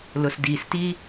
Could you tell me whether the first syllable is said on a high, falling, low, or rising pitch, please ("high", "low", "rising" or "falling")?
low